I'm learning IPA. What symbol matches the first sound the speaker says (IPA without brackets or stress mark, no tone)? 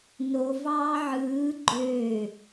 n